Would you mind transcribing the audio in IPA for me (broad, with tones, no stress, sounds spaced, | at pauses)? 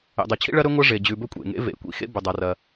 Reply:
ḛ˩ dˤ e˩ t͡ɕʰ ḭ˥ ɭ ɐ˥ ɾ ɵ˥ ŋʷ ɐ˥ ʐ e˩ d͡ʑ ʉ˩ b ɵ˥ kʷʼ ḛ˩ ŋ ḛ˥ v ḛ˩ kʷ ḭ˥ x ḛ˥ b ɵ˩ dˤ a˩ r ɐ˩